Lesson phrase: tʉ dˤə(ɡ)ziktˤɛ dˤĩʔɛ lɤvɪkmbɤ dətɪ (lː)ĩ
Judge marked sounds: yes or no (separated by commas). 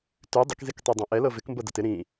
no, no